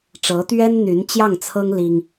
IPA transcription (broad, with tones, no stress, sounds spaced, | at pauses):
ʈ͡ʂ ɤ˧˥ t̪ ɥ ɛ˥ n n̪ y˧˥ n t͡ɕ j ɑ˥˩ ŋ t͡sʰ ɤ˥ ŋ l i˥ ŋ